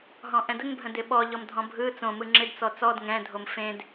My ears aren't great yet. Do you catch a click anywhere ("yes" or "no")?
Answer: yes